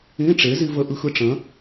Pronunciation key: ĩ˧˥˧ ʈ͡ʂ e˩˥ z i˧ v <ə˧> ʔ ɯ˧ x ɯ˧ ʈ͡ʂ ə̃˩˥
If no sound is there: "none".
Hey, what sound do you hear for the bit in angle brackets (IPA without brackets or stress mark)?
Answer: ə˧